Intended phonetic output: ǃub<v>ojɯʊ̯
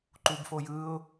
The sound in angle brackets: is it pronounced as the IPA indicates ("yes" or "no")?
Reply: no